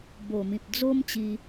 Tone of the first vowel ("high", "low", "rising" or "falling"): low